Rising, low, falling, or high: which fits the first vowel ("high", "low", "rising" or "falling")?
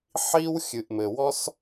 high